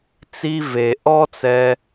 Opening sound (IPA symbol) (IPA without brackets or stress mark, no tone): t͡s